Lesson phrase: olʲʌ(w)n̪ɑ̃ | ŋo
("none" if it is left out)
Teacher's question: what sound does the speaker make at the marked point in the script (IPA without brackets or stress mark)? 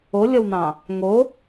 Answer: w